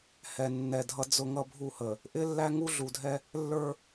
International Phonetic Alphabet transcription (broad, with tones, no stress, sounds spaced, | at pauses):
h ɛ˨ nː ɛ˨ dʱ ʌ˦ d͡z ʊ˦ ŋ ʌ˦ bʱ u˦˨ h ə˨ | ʔ ɪ˦ lː æ˦ ŋ u˦ ɮ u˨ dʱ ɛ˦ | lː ə˞˦